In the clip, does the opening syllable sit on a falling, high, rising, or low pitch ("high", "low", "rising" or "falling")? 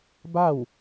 falling